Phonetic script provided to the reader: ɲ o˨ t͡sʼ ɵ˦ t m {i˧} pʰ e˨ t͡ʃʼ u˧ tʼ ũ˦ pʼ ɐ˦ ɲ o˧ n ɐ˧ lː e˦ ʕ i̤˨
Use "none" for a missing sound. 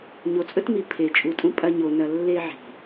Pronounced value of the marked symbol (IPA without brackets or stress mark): i˨